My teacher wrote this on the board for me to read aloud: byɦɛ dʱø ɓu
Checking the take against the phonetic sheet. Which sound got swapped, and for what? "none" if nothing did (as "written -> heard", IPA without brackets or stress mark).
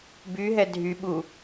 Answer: ø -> y